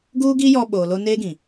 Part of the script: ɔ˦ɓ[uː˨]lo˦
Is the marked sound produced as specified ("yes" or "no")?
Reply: no